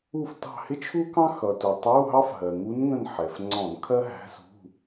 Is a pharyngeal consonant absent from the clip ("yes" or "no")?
no